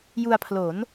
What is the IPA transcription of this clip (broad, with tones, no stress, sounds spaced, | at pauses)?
j u˧ a̯ pʰ l o˩˦ n